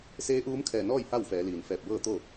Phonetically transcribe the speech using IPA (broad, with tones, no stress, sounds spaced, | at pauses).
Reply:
s eː˧˥ ʔ uː˧˥ m kʰ ɛː˧˩ n ɔː˥˨ j h a˥˨ w f ɛː˩˧ l iː˩ n f ɛː˧˩ p̚ b ɤː˥˨ t̪ o˥˨